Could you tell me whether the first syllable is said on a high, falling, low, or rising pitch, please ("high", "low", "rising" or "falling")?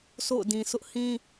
falling